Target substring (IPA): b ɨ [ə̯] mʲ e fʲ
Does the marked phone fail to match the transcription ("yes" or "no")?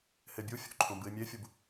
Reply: yes